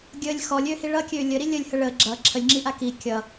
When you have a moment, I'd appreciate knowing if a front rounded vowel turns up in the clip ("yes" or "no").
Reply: yes